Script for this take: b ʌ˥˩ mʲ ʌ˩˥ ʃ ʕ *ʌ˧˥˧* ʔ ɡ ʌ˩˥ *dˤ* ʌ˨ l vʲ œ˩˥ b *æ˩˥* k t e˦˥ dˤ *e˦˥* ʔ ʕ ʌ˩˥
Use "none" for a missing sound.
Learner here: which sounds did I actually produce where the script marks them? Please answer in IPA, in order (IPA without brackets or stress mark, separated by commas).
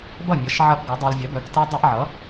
ʌ˦˥, dˤ, œ˩˥, e˦˥